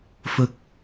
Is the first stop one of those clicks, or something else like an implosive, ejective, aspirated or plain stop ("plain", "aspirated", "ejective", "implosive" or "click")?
plain